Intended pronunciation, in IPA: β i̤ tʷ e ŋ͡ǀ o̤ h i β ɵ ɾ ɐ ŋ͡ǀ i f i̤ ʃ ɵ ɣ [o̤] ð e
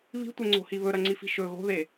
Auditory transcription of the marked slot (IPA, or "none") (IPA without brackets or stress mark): o̤